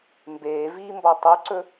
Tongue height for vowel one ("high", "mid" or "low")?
mid